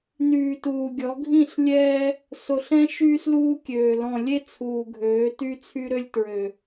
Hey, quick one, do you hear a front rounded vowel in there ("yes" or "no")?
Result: yes